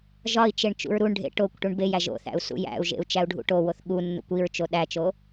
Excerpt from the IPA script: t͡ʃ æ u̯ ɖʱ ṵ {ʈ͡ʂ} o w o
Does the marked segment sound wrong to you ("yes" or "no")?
yes